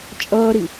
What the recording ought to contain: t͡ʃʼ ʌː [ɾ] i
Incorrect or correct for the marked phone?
correct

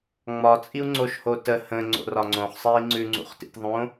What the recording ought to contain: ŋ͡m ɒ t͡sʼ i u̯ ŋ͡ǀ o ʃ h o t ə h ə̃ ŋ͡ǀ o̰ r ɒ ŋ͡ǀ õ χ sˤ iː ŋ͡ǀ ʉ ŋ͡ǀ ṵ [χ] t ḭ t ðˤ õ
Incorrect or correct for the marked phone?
correct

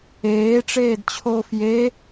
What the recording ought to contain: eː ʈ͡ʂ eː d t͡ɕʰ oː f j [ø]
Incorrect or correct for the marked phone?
incorrect: e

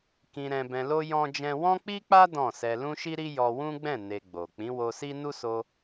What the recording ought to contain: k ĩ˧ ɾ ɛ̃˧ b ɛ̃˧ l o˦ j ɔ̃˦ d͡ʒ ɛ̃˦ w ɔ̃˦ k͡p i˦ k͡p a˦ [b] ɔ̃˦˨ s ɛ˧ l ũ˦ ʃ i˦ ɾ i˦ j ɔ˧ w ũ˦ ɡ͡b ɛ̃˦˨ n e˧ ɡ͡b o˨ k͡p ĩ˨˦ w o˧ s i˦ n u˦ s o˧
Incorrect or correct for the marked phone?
incorrect: d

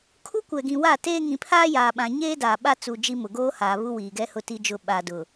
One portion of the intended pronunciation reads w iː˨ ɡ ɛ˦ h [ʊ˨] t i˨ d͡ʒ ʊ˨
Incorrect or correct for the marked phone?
correct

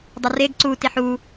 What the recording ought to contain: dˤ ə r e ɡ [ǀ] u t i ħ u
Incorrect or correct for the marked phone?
correct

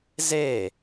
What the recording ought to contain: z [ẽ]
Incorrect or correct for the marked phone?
incorrect: e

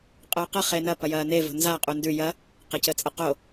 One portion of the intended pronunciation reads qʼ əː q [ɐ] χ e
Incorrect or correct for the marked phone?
correct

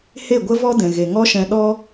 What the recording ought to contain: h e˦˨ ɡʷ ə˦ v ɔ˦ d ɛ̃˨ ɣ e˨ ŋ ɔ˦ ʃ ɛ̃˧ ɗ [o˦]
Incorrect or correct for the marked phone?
incorrect: ɔ˦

